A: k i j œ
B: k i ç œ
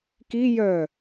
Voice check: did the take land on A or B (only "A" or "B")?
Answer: A